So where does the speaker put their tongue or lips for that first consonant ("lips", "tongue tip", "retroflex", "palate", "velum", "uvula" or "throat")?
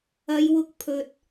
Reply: palate